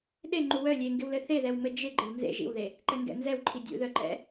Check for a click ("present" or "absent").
present